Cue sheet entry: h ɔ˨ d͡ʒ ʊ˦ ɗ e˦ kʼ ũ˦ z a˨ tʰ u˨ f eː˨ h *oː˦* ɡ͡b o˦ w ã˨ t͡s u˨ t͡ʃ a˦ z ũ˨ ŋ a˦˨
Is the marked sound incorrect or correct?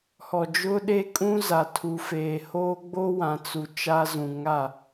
correct